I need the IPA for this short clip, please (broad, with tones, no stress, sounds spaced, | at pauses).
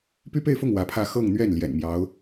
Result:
p y˥ p e˥˧ ɪ̯ f ʊ˥˩ ŋ w ä˧˥ pʰ ä˥˧ x ɤ˥˧ ŋ n̪ ɥ ɛ˥˩ n l j ɛ̰˨˩ n m j ɑ˧˥ ʊ̯